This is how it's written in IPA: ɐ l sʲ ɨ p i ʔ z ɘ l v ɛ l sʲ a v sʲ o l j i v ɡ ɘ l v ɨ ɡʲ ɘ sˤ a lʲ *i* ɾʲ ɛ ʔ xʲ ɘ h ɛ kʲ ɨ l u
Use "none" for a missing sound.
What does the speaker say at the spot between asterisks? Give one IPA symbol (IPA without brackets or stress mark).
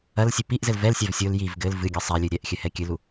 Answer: ɨ